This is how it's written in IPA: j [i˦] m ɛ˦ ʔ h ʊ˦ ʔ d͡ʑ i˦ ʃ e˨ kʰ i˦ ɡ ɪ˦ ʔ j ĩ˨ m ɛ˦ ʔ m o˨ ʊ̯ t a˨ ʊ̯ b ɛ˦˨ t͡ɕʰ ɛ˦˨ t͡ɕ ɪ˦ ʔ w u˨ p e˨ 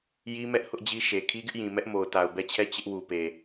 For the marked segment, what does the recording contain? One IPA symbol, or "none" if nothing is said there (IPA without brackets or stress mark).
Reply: i˦